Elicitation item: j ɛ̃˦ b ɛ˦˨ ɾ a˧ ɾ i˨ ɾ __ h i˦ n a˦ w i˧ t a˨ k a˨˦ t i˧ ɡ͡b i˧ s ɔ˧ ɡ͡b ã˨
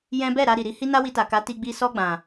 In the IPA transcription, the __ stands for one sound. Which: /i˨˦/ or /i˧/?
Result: i˧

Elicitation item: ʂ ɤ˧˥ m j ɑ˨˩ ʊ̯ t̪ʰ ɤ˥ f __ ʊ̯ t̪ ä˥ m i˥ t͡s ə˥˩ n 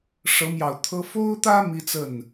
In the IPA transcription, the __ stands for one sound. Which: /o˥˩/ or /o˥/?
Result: o˥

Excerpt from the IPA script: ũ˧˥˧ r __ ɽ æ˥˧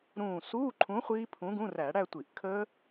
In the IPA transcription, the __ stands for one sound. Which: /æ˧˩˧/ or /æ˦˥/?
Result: æ˧˩˧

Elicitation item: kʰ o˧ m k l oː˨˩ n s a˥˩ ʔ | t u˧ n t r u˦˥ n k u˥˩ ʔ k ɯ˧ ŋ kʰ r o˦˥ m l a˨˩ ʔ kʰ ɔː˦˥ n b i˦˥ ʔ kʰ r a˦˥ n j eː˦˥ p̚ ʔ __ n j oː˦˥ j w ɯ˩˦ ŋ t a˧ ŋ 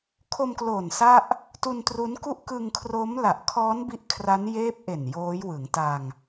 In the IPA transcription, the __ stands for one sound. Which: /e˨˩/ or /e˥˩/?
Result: e˨˩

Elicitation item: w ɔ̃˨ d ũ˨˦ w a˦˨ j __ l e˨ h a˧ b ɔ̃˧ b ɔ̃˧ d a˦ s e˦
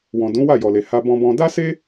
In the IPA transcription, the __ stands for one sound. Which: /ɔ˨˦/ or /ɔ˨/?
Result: ɔ˨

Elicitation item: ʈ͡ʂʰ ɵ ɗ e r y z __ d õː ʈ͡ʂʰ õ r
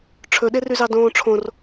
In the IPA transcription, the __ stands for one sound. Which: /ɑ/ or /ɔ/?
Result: ɑ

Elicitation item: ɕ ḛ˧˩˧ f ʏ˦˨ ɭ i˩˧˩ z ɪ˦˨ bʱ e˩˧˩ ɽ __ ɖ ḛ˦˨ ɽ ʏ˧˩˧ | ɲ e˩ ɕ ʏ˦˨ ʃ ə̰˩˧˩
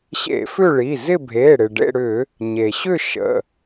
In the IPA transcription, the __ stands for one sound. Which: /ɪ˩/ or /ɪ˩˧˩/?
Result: ɪ˩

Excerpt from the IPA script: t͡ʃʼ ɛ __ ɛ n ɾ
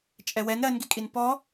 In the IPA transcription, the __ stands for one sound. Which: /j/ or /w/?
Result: w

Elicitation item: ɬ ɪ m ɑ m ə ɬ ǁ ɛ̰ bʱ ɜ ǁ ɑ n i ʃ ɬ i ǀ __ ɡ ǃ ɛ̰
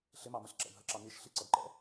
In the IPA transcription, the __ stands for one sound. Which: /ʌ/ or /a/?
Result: ʌ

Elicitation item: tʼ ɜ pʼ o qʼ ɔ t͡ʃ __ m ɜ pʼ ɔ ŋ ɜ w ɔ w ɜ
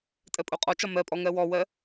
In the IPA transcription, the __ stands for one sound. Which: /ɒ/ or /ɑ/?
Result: ɒ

